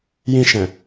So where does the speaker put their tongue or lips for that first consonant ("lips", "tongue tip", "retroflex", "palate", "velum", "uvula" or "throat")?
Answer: palate